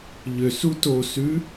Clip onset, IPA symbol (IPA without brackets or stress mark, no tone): ʎ